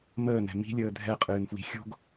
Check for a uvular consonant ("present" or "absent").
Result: present